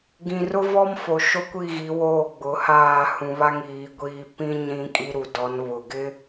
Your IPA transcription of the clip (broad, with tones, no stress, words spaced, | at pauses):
ɡĩ˨rʊ˦vɔ˦m fo˨ ʃo˦kʷi˦˨ɣi˨˦ woː˦˨ ɡ͡bʊ˨˦haː˦˨ hũ˨βa˦ŋ iː˨˦ɡʷiː˦ pĩ˦ ɲĩ˦kʼi˦ ɾu˨dɔ˨˦nβʊ˨ ɡɪ˦